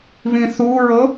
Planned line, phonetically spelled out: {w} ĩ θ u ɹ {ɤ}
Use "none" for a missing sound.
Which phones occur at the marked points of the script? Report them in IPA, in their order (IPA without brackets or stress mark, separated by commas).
β, ɤ